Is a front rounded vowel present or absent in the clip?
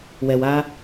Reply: absent